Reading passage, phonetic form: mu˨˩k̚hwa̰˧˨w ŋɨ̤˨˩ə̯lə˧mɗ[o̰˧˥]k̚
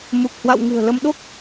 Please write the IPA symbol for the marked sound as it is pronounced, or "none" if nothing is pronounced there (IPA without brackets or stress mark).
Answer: o˦˥